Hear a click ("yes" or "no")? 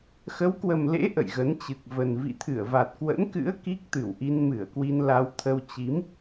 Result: no